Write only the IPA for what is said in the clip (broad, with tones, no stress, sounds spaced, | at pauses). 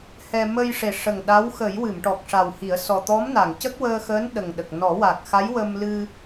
h ɛ˧ m ə˧ j ʂ e˨˩ ʂ ə˨˩ ŋ ɗ a˧˥ w x ə˨˩˦ j w ɨ˨˩˨ m ʈ ɔ˨˩ k̚ ʂ a˨˩ w h i˨˩˦ ə̯ s ɔ˨˩ t̪ ɔ˧˥ m n a˨˩˨ ŋ c ə˦˥ k̚ w əː˧ x əː˧˥ n ɗ ə˨˩ ŋ ɗ ə˨˩ k̚ n ɔ˨˩˦ w a˨˩ k̚ x a˧˥ j w ə˧ m l ɨ˧